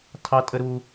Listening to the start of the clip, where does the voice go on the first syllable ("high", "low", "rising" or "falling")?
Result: high